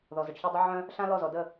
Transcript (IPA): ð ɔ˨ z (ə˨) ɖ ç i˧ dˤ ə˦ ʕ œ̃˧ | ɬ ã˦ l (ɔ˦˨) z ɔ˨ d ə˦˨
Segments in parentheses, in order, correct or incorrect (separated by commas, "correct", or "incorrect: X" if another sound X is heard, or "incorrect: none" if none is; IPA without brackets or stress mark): correct, correct